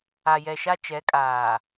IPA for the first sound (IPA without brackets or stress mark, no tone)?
a